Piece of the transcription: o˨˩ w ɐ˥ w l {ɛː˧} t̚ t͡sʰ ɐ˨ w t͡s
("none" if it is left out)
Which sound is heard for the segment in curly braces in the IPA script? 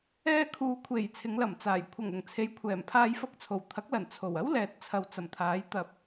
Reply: ɛː˨˥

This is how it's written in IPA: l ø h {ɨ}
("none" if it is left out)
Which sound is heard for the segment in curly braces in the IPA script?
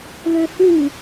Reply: ɨ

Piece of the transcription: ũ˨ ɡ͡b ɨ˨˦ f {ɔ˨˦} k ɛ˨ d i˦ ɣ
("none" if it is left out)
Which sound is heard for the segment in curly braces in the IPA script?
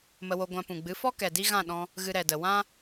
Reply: ɔ˦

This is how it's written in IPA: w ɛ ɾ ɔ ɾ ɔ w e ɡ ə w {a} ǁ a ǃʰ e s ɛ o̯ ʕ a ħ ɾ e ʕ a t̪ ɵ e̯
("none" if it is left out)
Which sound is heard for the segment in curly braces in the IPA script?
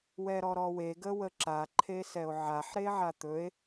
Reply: ə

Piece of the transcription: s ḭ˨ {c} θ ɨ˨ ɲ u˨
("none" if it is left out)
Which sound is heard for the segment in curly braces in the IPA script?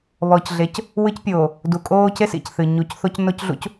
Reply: c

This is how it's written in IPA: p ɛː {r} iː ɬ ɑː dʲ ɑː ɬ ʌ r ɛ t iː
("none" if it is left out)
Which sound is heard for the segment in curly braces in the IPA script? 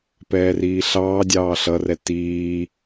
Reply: r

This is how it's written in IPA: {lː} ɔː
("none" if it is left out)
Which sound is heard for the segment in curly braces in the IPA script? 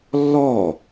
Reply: lː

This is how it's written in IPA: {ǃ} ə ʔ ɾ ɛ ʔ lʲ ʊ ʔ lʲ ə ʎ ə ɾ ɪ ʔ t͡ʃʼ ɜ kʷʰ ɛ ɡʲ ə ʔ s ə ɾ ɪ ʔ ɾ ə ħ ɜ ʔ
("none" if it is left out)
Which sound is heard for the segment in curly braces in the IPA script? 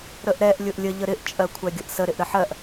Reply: ɾ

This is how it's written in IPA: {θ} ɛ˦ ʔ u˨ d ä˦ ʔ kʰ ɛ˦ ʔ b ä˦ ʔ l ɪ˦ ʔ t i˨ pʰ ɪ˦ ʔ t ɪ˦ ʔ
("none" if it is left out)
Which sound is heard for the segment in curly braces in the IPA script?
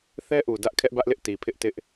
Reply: θ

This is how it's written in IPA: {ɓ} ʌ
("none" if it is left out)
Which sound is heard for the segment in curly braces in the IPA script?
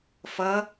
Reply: f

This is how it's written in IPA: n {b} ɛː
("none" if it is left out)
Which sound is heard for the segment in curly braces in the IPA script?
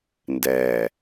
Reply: d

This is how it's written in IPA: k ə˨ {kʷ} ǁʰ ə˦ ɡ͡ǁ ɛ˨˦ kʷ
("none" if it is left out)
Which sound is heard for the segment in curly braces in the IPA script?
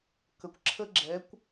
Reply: kʷ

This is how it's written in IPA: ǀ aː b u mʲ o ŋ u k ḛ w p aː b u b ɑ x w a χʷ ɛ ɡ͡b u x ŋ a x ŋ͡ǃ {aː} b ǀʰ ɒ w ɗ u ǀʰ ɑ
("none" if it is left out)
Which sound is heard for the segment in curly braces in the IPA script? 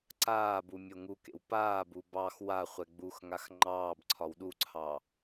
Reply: ɑː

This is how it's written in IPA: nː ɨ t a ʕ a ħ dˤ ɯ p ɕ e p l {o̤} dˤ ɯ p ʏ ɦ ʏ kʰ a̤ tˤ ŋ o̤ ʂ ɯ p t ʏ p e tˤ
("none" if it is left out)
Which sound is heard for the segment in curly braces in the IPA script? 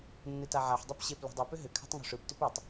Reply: o̤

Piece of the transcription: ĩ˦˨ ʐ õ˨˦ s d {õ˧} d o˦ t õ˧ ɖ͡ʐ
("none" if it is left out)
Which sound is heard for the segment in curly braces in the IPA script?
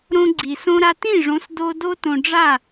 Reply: o˧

